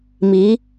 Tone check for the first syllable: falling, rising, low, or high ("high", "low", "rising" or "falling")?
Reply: rising